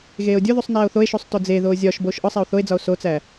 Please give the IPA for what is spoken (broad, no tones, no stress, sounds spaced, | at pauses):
ɣ eː o̯ dʲ o ð u sˤ n æː o̯ θ o e̯ ʃ u sˤ t o d͡z e ð oː zʲ ɒ ʃ b oː ʃ ʔ ɒ sˤ æ o̯ θ o e̯ d͡z ɒ o̯ s o t͡s æ